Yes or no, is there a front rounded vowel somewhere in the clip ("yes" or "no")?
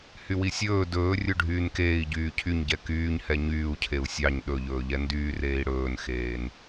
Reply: yes